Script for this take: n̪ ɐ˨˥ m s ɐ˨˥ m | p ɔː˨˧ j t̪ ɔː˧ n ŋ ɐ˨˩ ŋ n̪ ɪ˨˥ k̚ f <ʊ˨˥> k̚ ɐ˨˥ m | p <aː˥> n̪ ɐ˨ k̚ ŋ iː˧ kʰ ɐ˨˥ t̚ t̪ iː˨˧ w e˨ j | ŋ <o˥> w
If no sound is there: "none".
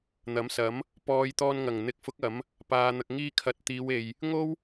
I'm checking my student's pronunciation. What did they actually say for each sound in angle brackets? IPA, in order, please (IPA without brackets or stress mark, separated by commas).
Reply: ʊ˨˥, aː˨, o˥